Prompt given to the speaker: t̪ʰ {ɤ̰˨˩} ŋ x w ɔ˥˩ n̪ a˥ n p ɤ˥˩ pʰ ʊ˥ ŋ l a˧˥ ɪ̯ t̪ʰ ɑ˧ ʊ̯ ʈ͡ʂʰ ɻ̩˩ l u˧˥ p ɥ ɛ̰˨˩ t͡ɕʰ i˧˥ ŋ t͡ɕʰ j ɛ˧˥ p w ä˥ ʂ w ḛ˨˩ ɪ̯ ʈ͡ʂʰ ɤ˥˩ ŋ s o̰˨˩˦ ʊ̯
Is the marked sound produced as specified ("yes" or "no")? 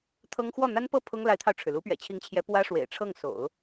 no